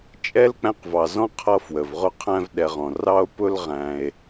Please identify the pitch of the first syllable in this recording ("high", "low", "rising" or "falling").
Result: high